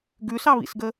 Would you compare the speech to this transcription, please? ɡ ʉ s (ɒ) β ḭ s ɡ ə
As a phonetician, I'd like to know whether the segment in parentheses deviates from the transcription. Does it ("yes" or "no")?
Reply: yes